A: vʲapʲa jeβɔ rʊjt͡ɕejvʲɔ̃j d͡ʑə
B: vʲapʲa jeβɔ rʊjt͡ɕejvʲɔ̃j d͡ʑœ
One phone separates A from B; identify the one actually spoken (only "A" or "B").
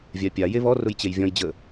A